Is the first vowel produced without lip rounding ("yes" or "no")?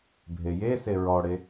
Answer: yes